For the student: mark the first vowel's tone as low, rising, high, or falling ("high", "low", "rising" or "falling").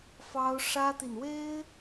high